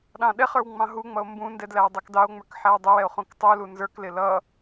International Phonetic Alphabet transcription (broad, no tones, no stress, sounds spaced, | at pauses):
ɗ ɑ̃ ɗ ɛ χ ə˞ w ŋ͡m ɑ̃ ɦ u ŋ͡m ʌ o̯ m b ũ n d ɛ d l æ w dˤ ɛ k d ɑ o̯ ŋ͡m ə˞ k ħ æ w dˤ ɪ w ɛ o̯ χ ũ k tˤ u l u n z ə˞ k l ɪ l ʌ